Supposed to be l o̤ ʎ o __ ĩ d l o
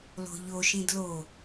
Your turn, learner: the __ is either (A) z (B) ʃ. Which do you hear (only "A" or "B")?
B